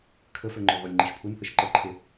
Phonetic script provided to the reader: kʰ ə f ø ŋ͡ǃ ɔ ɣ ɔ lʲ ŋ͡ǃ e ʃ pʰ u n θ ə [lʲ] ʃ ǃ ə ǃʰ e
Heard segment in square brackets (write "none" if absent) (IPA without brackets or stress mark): none